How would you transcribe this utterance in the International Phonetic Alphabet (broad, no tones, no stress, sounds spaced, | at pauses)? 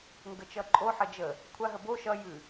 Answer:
ŋ ɡ ə t͡ʃ ʌ ǃʼ o ħ ə d͡ʒ ə | kʷʰ a ɦ ə b o ʃ ʌ j ʉ